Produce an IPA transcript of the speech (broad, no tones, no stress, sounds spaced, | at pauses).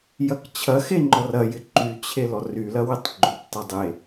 j ɐ k t͡ɕʰ ɐ x e ŋ͡ǃ ɔ r ɐ j ɪ ǃ y t͡ɕʰ e l ɔ r y l ɐ w ɪ tˤ ɡ͡ǃ ʏ p tˤ e dˤ e